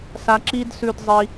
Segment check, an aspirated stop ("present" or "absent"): absent